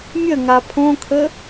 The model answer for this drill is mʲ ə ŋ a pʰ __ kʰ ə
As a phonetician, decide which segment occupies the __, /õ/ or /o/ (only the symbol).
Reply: õ